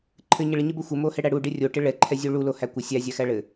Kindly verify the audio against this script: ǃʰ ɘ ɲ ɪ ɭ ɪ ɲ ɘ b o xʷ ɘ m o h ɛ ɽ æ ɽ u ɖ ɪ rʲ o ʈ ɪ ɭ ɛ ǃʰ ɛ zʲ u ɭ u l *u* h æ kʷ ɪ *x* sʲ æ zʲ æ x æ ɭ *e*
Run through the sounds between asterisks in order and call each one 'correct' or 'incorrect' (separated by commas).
incorrect, incorrect, incorrect